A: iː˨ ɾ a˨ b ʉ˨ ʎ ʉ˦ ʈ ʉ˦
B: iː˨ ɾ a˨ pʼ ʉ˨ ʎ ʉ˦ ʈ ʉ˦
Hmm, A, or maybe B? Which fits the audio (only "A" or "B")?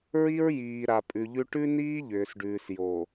B